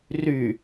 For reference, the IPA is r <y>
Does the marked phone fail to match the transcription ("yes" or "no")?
no